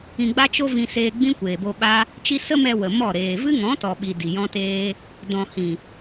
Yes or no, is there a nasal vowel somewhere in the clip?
yes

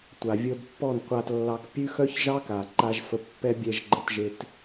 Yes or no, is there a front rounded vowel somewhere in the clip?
yes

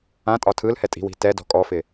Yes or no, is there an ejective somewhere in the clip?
yes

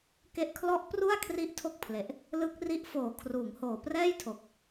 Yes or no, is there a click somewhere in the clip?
no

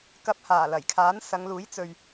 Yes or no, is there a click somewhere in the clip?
no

